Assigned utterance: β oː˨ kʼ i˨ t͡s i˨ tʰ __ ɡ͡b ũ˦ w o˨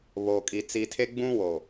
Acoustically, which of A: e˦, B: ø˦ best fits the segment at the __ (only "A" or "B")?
A